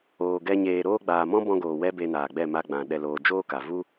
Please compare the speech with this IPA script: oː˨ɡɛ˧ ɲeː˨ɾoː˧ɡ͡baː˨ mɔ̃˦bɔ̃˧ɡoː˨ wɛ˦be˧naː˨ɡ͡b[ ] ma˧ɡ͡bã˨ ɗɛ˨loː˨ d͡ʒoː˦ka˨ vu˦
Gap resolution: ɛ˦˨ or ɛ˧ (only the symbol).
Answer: ɛ˦˨